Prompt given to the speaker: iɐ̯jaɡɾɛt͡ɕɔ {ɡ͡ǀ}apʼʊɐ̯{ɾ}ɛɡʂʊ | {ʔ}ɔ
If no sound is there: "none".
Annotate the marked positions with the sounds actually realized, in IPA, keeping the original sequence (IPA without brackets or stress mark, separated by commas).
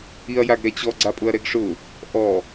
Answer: ɡ͡ǀ, ɾ, ʔ